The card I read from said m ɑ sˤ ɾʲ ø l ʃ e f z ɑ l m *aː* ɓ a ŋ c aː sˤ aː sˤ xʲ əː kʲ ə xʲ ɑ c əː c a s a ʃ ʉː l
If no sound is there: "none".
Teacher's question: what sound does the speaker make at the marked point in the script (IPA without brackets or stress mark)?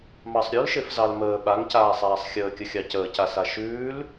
əː